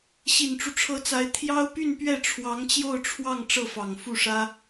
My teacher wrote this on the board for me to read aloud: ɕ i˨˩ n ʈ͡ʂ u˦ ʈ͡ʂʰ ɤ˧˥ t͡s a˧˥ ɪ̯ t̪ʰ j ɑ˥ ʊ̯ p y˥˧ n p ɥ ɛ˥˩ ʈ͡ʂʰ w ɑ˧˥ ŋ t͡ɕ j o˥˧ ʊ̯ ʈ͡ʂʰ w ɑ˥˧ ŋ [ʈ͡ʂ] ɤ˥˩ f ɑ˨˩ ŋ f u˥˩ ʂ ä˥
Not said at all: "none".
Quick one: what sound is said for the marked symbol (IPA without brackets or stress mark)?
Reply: ʈ͡ʂ